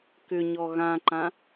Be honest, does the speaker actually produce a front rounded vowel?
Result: yes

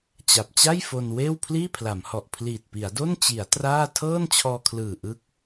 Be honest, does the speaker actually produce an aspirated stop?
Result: yes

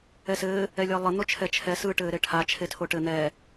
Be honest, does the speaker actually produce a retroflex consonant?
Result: yes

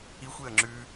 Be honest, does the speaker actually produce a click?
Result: yes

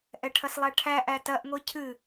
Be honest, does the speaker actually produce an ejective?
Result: no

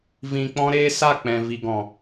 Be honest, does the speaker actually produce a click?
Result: no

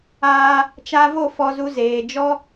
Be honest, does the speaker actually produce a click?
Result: no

